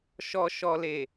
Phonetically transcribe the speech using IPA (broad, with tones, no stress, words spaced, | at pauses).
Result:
ʃɔ˨ʃɔ˨le˨